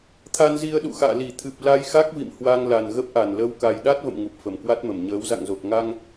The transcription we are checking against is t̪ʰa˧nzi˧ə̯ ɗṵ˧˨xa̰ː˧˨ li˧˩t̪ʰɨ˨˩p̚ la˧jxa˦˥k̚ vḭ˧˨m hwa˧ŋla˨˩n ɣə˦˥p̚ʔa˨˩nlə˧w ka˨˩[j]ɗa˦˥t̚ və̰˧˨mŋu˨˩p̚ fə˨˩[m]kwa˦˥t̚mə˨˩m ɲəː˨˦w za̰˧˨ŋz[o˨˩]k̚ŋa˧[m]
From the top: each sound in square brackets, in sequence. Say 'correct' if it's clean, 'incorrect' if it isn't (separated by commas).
correct, correct, correct, incorrect